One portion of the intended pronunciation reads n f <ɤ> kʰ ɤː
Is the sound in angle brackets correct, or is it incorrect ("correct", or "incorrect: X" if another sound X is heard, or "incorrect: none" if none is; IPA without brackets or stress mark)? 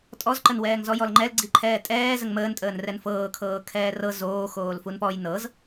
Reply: incorrect: ɤː